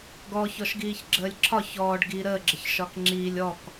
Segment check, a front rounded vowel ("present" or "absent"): absent